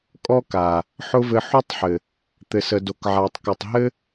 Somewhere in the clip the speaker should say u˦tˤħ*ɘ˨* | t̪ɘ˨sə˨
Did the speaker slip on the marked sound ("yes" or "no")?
no